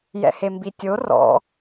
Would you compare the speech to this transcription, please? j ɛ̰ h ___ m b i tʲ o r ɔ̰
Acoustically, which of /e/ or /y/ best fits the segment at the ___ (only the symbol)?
e